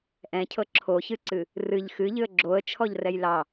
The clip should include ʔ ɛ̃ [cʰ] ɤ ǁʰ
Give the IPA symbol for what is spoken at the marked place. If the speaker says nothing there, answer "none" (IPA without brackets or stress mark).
cʰ